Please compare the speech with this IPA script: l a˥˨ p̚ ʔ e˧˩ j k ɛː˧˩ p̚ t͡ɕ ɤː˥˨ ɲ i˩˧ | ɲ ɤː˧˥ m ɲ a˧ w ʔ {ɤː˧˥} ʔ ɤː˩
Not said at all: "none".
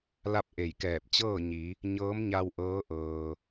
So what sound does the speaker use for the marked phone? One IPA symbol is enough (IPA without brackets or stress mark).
ɤː˧˥